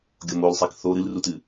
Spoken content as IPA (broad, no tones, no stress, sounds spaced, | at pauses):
ɡʲ o m o l sˤ ɛ k θ o ɾ ɨ l r u t ɨ